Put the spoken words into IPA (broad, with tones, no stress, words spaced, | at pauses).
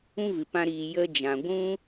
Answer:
ũ˦vɨ˨pã˧ ɾiː˨ jə˦ d͡ʒã˨ ɡʷũ˦